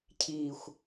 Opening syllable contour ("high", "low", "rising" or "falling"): falling